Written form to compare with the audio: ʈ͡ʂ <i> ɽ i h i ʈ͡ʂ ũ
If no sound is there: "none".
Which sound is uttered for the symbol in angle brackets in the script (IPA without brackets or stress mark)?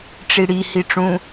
i